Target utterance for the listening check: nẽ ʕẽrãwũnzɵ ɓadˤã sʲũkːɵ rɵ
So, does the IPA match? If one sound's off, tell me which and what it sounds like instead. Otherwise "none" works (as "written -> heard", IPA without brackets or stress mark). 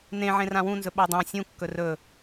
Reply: none